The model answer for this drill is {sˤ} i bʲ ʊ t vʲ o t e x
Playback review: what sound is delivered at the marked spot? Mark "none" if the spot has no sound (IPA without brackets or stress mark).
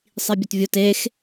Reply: sˤ